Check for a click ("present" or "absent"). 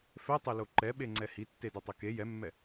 present